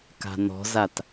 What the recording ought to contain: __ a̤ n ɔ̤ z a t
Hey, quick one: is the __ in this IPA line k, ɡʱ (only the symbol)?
k